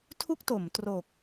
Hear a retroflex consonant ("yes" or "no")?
no